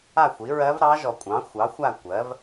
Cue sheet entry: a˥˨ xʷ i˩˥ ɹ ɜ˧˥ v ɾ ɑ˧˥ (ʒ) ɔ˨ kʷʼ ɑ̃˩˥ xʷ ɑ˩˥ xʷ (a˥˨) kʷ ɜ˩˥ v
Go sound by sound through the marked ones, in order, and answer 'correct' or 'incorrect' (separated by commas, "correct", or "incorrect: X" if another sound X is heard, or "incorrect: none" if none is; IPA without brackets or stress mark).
correct, correct